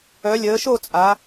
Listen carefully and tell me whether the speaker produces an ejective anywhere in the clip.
yes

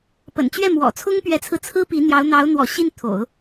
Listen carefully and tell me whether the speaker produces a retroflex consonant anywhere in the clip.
no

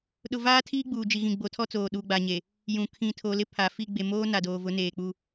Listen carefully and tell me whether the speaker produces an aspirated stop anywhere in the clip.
yes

